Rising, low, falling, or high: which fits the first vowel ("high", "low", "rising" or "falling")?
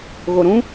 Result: low